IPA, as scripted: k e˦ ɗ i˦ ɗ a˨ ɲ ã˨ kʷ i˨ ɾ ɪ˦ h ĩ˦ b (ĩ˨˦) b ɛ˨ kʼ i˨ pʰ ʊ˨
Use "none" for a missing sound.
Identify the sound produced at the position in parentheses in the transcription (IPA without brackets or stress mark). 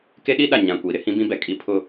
ĩ˦